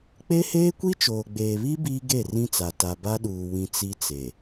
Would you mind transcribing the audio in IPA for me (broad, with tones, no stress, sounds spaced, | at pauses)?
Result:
k͡p e˦ h eː˦ kʷ i˦ t͡ʃ oː˨ ɡ͡b eː˨ β i˦ b iː˦ ɡ e˦˨ r ĩ˦ t͡s a˨ t a˨ b a˦ ɗ uː˨ w ĩ˨ t͡s i˦ t͡s e˨